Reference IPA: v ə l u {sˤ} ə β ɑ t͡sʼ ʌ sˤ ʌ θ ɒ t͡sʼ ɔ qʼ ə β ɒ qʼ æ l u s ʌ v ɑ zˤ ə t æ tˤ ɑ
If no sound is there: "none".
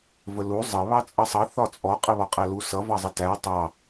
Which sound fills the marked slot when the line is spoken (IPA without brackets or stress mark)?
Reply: zˤ